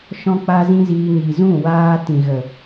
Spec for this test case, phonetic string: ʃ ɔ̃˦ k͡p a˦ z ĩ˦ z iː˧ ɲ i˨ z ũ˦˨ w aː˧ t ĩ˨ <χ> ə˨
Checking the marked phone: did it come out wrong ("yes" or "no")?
yes